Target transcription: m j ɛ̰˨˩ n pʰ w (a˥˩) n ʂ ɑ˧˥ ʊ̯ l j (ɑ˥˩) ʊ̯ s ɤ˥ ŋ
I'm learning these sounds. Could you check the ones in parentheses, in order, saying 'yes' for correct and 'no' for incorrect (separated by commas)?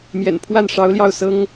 yes, yes